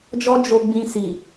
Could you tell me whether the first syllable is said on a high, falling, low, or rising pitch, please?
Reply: high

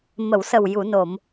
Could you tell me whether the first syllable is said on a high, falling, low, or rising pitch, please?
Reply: low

